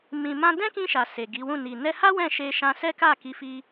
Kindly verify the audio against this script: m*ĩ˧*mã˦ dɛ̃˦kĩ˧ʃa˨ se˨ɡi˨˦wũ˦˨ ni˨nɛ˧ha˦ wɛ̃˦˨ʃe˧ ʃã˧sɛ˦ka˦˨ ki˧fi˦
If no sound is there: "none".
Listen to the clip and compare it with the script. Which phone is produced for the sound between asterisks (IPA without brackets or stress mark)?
ĩ˧